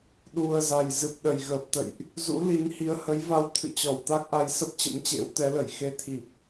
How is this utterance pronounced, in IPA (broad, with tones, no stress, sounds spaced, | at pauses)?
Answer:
ɗ u˨˩ ə̯ z a˨˩ j z ɨ˨˩ p̚ ɗ ə˨˩ j ɣ əː˨˩ p̚ t̪ ə̰˧˨ j ʔ | z ṵ˧˥ l i˨˦ n h i˨˦ ə̯ h ə˨˦ j v a˧ w t̪ʰ ɨ̰˧˨ t͡ɕ ɔ˧˩ w t̪ a˦˥ k̚ ʔ a˨˦ j s ə˦˥ p̚ t͡ɕ ə̰˧˥ m t͡ɕ ḛ˧˥ w t̪ ɛ˨˦ l ə˧˩ j x e˨˦ t̪ʰ i˨˩ p̚